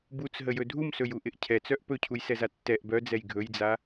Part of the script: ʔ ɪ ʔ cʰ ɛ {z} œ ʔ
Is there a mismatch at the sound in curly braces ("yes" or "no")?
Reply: yes